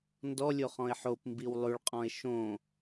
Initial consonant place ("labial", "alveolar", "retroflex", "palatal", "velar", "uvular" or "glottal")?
alveolar